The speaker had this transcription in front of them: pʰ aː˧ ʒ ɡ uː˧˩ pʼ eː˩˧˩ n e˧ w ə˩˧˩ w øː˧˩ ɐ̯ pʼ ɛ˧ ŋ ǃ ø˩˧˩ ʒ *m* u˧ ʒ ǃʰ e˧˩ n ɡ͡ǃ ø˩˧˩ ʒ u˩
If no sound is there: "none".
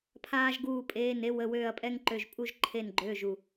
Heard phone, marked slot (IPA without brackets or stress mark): pʼ